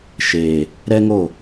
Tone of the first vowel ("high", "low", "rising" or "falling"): low